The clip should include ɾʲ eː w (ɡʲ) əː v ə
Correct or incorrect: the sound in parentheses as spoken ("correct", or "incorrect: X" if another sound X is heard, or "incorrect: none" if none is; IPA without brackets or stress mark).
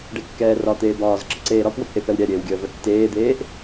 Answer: correct